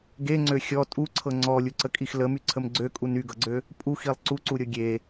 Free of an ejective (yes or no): no